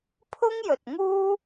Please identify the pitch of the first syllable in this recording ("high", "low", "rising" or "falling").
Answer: high